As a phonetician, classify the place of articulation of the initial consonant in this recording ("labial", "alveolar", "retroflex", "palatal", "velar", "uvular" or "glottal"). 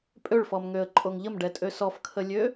labial